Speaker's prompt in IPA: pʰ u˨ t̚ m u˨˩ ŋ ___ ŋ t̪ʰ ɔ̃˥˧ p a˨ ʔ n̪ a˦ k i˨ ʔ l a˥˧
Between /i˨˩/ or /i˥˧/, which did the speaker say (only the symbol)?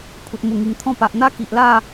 i˨˩